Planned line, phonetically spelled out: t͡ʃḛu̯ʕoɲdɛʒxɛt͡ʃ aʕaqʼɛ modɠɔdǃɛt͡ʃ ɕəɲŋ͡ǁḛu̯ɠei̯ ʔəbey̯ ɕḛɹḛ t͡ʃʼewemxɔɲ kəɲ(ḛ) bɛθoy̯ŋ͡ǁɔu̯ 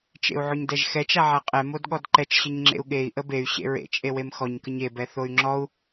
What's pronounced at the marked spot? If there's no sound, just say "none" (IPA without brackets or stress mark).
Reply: e